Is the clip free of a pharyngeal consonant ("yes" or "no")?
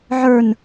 no